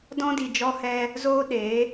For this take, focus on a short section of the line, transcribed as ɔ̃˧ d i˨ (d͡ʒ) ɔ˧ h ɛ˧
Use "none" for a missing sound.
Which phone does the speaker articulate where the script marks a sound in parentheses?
d͡ʒ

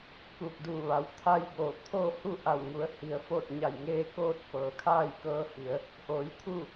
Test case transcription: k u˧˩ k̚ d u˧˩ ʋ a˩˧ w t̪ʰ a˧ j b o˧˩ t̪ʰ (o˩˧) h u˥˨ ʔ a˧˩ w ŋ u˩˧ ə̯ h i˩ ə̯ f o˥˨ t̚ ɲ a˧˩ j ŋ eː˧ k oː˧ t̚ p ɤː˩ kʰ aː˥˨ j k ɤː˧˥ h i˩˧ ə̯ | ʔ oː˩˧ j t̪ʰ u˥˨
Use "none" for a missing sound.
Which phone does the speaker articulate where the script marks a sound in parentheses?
o˥˨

